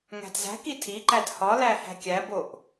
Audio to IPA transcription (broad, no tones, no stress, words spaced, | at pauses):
ŋæ̤dzæ̤ki tʰiǃæd hɒlæ hæ̤kʲæboʔ